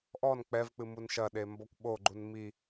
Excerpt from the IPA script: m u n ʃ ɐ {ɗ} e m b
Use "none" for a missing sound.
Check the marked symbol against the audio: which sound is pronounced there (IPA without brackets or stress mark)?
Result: ɗ